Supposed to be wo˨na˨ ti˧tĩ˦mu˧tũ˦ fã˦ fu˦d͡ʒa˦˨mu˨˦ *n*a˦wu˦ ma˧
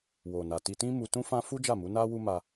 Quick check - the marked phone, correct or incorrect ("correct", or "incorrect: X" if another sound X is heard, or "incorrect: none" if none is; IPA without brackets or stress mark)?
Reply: correct